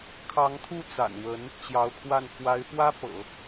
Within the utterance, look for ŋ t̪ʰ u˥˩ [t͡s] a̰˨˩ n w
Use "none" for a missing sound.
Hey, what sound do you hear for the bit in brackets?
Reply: t͡s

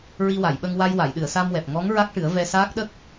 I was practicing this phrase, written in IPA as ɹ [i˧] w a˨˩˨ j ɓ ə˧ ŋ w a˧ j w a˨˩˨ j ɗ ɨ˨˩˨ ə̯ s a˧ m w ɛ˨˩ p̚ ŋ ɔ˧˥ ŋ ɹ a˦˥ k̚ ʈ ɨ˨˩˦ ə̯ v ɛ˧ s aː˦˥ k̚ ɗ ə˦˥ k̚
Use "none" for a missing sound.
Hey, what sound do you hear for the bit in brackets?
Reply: i˧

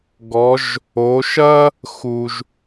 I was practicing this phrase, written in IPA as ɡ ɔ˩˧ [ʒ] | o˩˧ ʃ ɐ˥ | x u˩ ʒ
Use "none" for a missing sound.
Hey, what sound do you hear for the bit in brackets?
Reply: ʒ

